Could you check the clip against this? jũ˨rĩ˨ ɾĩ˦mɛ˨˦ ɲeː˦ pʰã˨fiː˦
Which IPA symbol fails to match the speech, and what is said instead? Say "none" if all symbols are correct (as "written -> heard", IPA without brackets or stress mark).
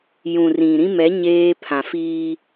none